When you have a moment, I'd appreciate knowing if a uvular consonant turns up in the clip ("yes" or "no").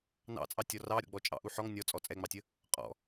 yes